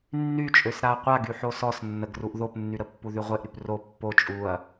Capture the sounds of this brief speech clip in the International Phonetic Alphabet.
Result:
nː y t͡ʃʼ ø s ɾ a ɐ̯ qʷ a ɡ y ħ o s ɔ s nː ə ɡ r u ʔ ð o p nː y ɾ ə pː u ð y ʁʷ e ʔ ɾ y p r o pː o t͡ʃʼ u ɐ̯

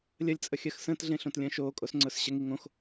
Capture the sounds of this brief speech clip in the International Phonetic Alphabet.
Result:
lʲ ə lʲ t͡sʼ ə xʲ ɜ x s ə̃ː t ɮ ẽ ɬ õ t lʲ ə̃ː ʃ oː kʼ o s ŋ͡ǀ ʊː s ɕ ə ŋ i ŋ õ x

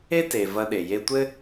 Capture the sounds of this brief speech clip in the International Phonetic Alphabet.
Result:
e˥ t e˩ v ɐ˧ ɗ e˩ j e˧ tʷ ɘ˥

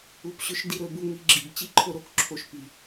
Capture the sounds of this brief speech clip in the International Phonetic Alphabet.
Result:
u˧ p ɕ ɵ˦ ʃ d i˧ ɾ ɵ˨˦ b u˧ ŋ i˧ ɡ͡ǁ i˨ b t͡ɕ i˦ ǃʰ o˧ ɾ o˦ k ǁʰ o˧ ʃ p i˨

